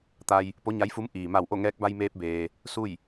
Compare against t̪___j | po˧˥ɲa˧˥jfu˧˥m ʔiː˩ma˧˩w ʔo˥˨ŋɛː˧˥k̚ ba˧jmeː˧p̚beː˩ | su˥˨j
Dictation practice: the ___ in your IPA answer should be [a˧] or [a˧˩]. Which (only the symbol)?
a˧